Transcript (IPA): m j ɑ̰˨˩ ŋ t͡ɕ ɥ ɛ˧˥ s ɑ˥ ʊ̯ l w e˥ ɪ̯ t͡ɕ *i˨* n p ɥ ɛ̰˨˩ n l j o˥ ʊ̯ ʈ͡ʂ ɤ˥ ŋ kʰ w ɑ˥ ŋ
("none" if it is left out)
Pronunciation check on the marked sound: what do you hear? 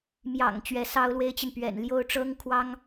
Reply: i˨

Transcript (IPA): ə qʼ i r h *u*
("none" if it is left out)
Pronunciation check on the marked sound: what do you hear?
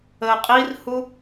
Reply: u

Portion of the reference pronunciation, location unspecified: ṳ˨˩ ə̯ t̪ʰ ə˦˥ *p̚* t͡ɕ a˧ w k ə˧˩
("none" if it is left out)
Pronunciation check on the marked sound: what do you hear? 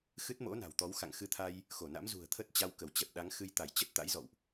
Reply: t̚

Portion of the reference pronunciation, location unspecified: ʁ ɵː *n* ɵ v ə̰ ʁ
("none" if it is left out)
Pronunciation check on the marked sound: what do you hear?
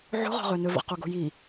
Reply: n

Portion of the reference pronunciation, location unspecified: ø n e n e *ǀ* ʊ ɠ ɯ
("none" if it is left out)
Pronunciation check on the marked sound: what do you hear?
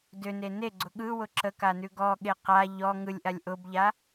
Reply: ɡ͡ǀ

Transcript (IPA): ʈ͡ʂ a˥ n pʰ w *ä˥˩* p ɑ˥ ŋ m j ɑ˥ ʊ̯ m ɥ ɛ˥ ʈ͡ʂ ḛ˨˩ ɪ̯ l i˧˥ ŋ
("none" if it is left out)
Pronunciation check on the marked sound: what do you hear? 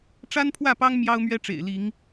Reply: ä˥˩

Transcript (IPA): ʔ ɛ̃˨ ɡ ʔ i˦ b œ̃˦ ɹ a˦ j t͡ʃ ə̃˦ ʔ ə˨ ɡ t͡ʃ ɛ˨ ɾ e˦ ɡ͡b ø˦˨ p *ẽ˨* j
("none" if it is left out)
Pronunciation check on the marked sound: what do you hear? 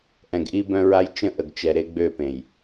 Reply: ẽ˨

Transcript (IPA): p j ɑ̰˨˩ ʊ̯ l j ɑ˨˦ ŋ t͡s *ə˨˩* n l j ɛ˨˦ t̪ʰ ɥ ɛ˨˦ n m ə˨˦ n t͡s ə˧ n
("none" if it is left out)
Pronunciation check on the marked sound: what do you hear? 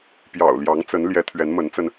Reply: ə˨˦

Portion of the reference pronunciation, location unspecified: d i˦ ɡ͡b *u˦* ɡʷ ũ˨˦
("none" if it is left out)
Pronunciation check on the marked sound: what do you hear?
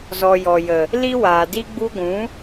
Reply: u˦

